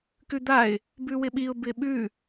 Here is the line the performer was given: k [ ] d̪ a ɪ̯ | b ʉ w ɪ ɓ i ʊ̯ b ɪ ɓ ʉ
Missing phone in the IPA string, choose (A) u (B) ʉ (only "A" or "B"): B